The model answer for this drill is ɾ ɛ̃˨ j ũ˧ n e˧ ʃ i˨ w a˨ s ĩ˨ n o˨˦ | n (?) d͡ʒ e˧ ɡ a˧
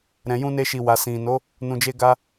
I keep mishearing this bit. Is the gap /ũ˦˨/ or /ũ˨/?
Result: ũ˨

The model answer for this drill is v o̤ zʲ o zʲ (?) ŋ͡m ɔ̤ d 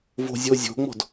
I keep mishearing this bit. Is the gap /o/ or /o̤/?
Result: o̤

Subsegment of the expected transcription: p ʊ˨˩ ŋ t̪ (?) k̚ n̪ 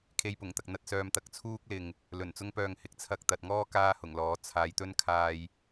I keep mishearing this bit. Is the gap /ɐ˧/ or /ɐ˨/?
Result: ɐ˨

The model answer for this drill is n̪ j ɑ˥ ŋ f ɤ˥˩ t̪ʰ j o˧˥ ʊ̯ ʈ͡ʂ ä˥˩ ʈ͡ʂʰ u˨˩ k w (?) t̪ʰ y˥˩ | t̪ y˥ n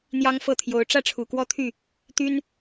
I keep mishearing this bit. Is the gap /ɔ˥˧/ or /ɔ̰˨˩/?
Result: ɔ˥˧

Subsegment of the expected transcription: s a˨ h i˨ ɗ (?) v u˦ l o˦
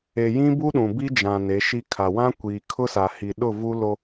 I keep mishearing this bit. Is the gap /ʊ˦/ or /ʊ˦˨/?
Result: ʊ˦˨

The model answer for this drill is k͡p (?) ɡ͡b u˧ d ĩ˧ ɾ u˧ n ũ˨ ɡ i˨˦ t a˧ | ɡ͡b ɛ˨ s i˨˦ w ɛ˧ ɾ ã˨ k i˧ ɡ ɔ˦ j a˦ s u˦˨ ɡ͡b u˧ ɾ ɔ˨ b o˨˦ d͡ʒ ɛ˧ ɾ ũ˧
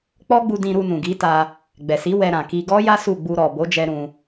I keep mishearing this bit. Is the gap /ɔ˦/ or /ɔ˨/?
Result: ɔ˦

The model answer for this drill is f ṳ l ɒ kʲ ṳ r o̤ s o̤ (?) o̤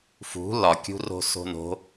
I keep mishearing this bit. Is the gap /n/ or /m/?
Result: n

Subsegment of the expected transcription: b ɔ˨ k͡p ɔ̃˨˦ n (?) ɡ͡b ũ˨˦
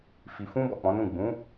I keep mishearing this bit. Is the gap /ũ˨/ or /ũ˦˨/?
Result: ũ˦˨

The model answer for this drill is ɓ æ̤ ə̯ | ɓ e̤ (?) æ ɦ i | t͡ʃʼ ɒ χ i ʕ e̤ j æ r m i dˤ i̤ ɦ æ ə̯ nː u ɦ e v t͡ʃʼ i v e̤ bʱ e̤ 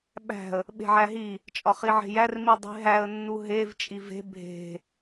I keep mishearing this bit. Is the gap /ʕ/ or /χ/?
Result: ʕ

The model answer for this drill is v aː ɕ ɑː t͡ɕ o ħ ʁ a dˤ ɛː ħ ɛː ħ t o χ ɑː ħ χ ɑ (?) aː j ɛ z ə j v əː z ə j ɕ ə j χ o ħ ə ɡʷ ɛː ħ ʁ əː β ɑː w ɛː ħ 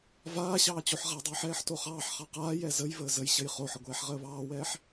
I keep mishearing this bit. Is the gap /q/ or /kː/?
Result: q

